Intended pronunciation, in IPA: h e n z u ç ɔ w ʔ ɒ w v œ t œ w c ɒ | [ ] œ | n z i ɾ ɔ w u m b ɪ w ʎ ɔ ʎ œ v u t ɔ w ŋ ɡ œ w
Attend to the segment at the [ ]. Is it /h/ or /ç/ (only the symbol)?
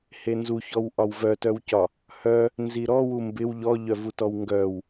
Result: h